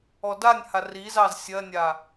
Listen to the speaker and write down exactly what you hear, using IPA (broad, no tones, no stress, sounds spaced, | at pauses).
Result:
ɔ d a nʲ h a r i z ɑ z sʲ ɜ nʲ a